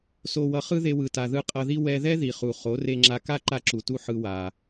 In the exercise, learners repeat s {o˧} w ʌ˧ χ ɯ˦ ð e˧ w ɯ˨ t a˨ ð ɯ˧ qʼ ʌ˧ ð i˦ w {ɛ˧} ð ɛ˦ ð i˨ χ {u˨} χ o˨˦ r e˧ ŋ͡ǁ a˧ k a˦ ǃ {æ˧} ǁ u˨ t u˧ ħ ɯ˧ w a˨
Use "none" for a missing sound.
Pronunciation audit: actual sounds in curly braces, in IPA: o˧, ɛ˧, u˨, a˧

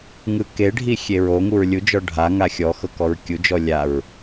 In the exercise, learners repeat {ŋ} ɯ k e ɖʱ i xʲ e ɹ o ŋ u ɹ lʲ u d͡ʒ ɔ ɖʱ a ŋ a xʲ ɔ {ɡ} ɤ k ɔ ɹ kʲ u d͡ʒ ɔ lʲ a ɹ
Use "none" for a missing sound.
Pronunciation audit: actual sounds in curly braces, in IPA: ŋ, x

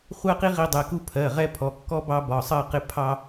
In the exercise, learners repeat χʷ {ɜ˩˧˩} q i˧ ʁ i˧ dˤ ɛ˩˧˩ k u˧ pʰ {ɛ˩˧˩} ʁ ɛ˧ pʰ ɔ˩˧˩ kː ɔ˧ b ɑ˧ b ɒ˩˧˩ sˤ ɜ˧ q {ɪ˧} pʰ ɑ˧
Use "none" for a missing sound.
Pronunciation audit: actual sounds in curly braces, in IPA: ɜ˧, ɜ˩˧˩, ɪ˧

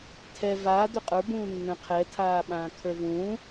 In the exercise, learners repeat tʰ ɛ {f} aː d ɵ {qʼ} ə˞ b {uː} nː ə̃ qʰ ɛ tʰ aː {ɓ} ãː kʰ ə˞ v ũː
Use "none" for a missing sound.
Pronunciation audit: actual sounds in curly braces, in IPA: v, qʼ, ũː, ɓ

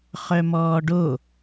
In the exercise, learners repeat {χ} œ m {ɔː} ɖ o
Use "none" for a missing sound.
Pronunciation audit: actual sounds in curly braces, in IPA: χ, ɔː

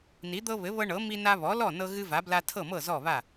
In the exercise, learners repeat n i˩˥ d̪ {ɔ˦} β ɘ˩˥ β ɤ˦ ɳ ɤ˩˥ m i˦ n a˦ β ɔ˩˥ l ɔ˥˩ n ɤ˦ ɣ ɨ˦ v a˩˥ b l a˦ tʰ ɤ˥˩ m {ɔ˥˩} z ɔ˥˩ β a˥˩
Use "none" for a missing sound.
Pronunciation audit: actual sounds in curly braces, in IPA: ɤ˦, ɤ˥˩

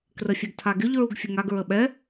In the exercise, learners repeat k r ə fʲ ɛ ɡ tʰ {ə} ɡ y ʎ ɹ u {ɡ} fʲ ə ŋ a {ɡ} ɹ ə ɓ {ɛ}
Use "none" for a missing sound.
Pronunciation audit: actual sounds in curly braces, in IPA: a, ɡ, ɡ, ɛ

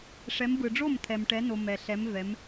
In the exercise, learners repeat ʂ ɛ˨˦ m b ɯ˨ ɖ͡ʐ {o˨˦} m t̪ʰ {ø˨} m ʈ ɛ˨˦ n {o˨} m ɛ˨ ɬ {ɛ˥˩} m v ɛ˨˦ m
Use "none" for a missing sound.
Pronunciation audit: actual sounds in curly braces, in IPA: o˥˩, ɛ˨, o˨, ɛ˨˦

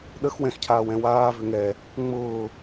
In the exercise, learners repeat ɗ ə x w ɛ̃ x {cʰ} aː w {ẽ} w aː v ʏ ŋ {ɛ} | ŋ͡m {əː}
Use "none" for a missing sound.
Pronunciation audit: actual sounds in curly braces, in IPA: cʰ, ɛ̃, ɛ, ʊː

